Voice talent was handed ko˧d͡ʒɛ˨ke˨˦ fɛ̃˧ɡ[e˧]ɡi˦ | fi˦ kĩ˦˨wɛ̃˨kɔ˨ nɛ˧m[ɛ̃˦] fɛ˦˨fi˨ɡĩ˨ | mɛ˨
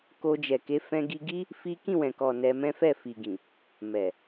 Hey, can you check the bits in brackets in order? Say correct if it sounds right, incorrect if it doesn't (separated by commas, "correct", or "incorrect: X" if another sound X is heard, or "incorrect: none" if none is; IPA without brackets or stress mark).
incorrect: i˧, correct